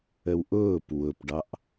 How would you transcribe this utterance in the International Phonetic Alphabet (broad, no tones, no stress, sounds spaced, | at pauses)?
ə w ʔ ʊː p w ʊ p ɖ ɑ ʔ